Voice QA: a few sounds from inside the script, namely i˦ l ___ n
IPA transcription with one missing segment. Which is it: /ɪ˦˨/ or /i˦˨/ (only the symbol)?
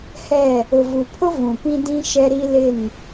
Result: ɪ˦˨